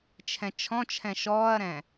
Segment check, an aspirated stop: present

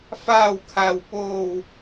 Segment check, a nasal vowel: absent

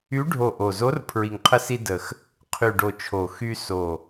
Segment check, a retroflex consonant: present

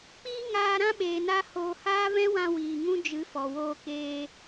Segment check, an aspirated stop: absent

